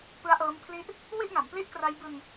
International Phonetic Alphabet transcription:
p ɯ˦˥ a̯ ʔ ɤː˦˥ m pʰ l i˥˩ ʔ | w i˥˩ ʔ ŋ a˩˦ m p l i˥˩ ʔ k r a˦˥ j b ɯ˧ ŋ

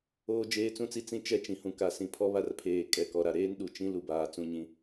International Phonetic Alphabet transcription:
oː˦ d͡ʒ eː˦ t͡s ũ˦ t͡s i˦ t͡s ĩ˦ t͡ʃ ɛ˦˨ t͡ʃ ĩ˨ h ũ˨ k a˨ s ĩ˨ pʰ ɔ˦ β a˦˨ r pʰ eː˨ kʼ ɛ˨ k ɔ˨ ɾ a˨ ɾ eː˦ n ɗ u˨ t͡ʃ ĩ˦ l u˨ b aː˨ t͡s ũ˦˨ ɲ ĩ˦

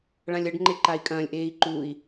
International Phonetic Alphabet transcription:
ɭ ã lʲ ɐ ɖ ŋ͡ǃ e ǃ a i̯ kʼ ɐ̃ː lʲ ʔ eː i̯ ǃ u i̯

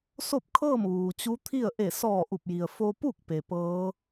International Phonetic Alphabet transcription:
s o˥˨ p̚ kʰ ɤː˥˨ m ʋ uː˩ t͡ɕ u˧˥ t̪ʰ i˥˨ ə̯ ʔ e˧˩ s ɔː˧˩ ʔ u˧˩ p̚ j i˩ ə̯ f o˧ p u˥˨ k̚ p e˩ p ɤː˧˥

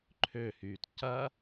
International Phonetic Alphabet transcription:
ǃʰ ø h yː t c ɐ

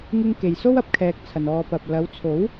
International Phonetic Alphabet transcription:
ŋ ɪ˧ ŋ k e˨ j s o˥ w ɐ˨ p̚ kʰ ɛː˨ k̚ t͡sʰ ɐ˨ n ɔː˧ p ɐ˨ p̚ l ɐ˨˧ w t͡sʰ o˨˥ w

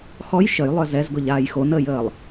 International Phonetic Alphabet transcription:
x ɔ j ʃ ə j lˠ œ z ɛ z ɡ ʊ ʎ aː j x o n əː j əː lˠ

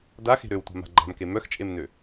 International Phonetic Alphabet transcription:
d a x e̤ ɾ ø w tʷ a̤ m a̤ ɡ͡ǃ a̤ m k e m œ x t͡ʃʼ e m n ø

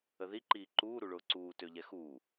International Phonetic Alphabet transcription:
ə ð i ǃ iː ǃ uː ɾ u ɭ ʊː ǀ uː t ø ʎ ɛ x uː

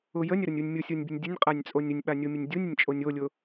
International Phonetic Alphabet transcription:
ʊ j ə nʲ ə ɾ ʊ nʲ u nʲ mʲ ʊ sʲ o nʲ bʲ ə nʲ dʲ ə nʲ qʼ a nʲ t͡sʼ o nʲ ʊ nʲ ɓ a nʲ o mʲ ə nʲ dʲ u nʲ ə nʲ t͡ʃʼ o nʲ o lʲ ʊ

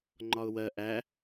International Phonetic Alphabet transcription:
ŋ͡ǃ ɒ ʊ̯ w ɜ ʔ æ

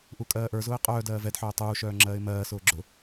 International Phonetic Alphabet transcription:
ʔ u kʼ ɜː ʔ ə˞ z ʊː ɪ̯ qʼ œː d ɜː v ɛ d ħ œː tˤ uː ʃ œː ŋ͡ǁ ɜː ɪ̯ m ɜː s ʊː ɡ͡ǁ ʊ

